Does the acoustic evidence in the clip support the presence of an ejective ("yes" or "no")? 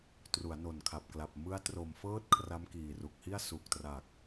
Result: no